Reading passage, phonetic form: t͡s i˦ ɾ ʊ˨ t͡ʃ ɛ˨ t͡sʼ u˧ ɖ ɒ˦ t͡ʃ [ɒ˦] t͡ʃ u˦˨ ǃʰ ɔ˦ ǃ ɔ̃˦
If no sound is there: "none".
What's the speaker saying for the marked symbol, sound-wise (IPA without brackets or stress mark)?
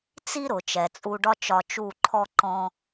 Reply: ɒ˧